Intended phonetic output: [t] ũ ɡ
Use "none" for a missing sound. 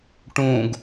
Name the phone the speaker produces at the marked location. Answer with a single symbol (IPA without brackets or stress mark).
ʈ